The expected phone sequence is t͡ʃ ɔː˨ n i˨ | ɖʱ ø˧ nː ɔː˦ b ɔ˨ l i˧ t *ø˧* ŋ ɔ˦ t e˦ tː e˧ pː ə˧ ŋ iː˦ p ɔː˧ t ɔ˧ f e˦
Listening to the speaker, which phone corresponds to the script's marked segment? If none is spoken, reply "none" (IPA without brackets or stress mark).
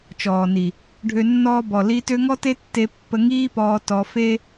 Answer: ø˧